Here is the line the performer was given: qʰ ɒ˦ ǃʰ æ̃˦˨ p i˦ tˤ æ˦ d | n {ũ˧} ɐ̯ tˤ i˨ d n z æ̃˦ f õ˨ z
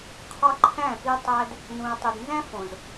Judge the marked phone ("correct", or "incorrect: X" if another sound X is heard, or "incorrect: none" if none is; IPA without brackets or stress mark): correct